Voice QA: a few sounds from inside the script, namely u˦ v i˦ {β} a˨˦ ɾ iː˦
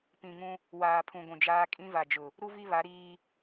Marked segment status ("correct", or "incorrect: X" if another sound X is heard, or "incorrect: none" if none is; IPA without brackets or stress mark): correct